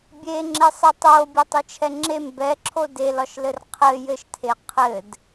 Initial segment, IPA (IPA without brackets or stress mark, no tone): bʲ